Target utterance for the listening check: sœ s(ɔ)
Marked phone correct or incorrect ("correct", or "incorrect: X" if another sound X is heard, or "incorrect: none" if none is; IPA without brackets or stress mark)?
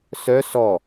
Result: correct